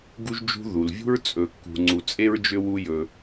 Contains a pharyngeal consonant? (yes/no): no